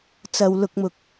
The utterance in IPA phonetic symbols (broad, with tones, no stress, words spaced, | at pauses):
t͡sɐ˨wlʊ˧k̚mʊ˧k̚